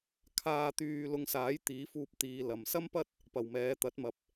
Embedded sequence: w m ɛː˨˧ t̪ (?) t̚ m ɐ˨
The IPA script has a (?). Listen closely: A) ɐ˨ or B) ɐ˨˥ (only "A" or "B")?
B